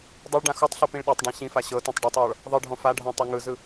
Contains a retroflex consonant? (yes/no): yes